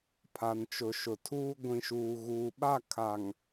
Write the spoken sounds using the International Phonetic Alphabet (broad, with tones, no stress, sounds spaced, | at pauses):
pʰ a˨ n t͡ʃ ʊ˨ ʃ ʊ˨ tʰ uː˦ ɡʷ ĩ˨ ʃ uː˨ ɣ uː˨ ɓ a˦˨ kʰ a˨ ŋ